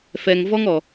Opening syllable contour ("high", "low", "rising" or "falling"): low